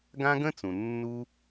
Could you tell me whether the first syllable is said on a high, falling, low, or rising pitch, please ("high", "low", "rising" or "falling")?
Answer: high